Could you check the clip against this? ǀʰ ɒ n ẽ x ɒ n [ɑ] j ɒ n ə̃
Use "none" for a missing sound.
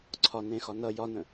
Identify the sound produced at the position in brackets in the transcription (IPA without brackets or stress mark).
ʌ